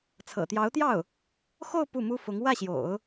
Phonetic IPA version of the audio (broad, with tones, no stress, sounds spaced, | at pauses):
t͡sʰ ɤ̰˨˩ t̪ j ɑ˧˥ ʊ̯ t̪ j ɑ˥˩ ʊ̯ | x o˥˧ ʊ̯ p u˥˩ m u˥ f ʊ˧˥ ŋ w ä˥˩ ɕ j o̰˨˩˦ ʊ̯